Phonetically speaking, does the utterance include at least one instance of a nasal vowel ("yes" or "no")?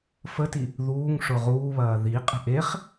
no